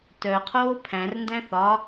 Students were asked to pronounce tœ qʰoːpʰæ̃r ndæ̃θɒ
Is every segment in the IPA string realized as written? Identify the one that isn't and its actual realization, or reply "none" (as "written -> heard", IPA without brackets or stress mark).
none